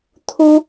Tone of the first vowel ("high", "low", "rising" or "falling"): high